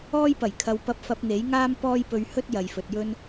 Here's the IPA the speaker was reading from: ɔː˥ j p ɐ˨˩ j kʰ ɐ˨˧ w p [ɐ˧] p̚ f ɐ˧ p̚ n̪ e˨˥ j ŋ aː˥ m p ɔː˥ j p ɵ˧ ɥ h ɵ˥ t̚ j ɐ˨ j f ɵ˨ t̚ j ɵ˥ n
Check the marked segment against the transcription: correct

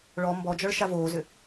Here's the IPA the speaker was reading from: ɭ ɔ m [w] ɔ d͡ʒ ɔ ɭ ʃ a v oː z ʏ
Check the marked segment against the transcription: incorrect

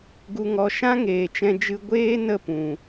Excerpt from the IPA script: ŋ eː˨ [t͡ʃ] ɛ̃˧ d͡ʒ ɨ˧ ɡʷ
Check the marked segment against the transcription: correct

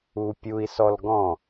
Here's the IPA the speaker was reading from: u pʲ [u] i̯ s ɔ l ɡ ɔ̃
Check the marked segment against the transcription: correct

